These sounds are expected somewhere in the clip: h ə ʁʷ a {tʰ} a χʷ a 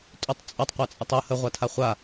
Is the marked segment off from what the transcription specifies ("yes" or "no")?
no